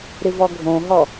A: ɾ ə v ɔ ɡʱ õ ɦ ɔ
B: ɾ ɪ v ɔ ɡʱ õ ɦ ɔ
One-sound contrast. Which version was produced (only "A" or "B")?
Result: B